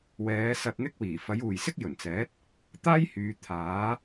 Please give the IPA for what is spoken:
wɛː˨˧ sɐ˧t̚n̪ɪ˥k̚wiː˨˩ fɐ˨˥juː˨jsɪ˥k̚ jɵ˨˩nt͡sɛː˨˥t̚ | t̪aː˥jhyː˨˧ t̪ʰaː˨˥

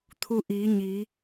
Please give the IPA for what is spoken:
t̪ʰu˧ʔiː˩˧ɲi˩˧

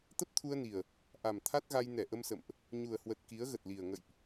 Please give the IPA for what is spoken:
t̪ə˦˥p̚t̪ʰu˧ə̯ni˨˩ə̯ | ʔa˨˩m t̪ʰa˦˥t̚ɣa˧j nɛ˧˩ʔə˧msə̰˧˨mʔ | ɲu˨˩ə̯hwə˨˩t̚ ki˨˦ə̯ɣə˨˩t̚li˨˩ə̯ ŋə̰˧˨jʔ

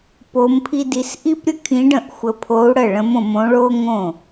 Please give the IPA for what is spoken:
po˧˥mpʰi˥di˧˥s ʔi˥pɾʲə˥kʰĩ˧˥ɖə̃˥˩ʔ xʷə˧pʰo˧˥u̯ɽə˥˩ɭə̃˧˥m õ˧mõ˧˥ɭo˥ ŋõ˥˩

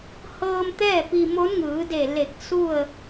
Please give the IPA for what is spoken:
hɤː˧m t̪ɛː˥˨pi˧ mo˧˥nŋɯː˩˧de˧˩ le˧˩k̚ su˥˨ə̯

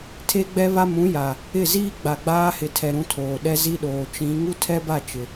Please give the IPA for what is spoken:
tʰe˦ɡ͡bɛ˦βa˦ mũ˨˦ja˨ | ɪ˦˨ ziː˦ ɡ͡ba˨ɡ͡baː˦hɪ˨tʰɛ˨ ɾũ˦tʰoː˨ ɗɛ˦zi˦ɗoː˨ t͡ʃĩ˨˦ ŋu˦tʰɛ˦ba˦˨ t͡ʃɪ˨

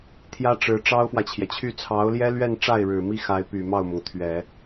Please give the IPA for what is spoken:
t̪ʰjä˥ʈ͡ʂɻ̩˧˥ ʈ͡ʂɑ˥ʊ̯fwä˨t͡ɕʰjɛ˩t͡ɕʰy˥˩ t͡sʰɑ˧˥ʊ̯ljɛ˥lɥɛ˥˧nʈ͡ʂa˥˩ɪ̯ ɻɻ̩˨˩mi˥xa˧˥ɪ̯ py˨˩ mɑ˥˩ʊ̯mʊ˩ŋt̪ʰɥɛ˨˩˦

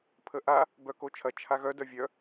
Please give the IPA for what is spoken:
pʰəʔa | bœkot͡ʃʰɐ t͡ʃʰaɣœ dœvʲœ

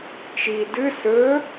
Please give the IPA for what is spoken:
t͡ʃi dɨ sɵ

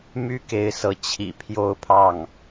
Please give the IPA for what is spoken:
my˥ke˧˥ɪ̯sɤ˧˥ t͡ɕʰḭ˨˩ pʰjo˥˧ʊ̯pʰɑ˥˩ŋ

